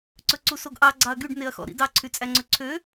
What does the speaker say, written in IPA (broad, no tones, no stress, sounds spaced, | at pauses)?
ǀ ɵ ǀ u s o ɡ ʔ ɑ ɡ͡ǀ ɑ ɐ̯ ɡ y ɖ n e ɐ̯ x ɔ̰ ɾ ḭ d ɑ ǀʰ y t͡sʼ æ ŋ͡ǀ ø ǀʰ ø